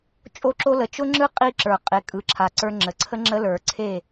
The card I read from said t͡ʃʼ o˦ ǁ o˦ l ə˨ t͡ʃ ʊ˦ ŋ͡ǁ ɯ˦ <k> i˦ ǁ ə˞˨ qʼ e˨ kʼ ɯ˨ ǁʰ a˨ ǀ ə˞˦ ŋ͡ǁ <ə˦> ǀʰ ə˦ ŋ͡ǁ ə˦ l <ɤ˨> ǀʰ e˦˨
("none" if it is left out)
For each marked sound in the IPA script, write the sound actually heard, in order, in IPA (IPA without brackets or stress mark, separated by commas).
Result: qʼ, ə˨, ə˞˨